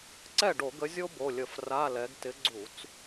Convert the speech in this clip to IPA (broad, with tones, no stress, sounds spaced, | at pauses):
ǀ ɛ˥˩ ɖ o˧˩˧ ɡ ə˨˦ zʲ o˥ b o˩˧˩ lʲ ə˧˩˧ f r a˧˥˧ l ɛ˨˦ ɡ t ɪ˨˦ ɡ͡ǀ u˧˩˧ t͡s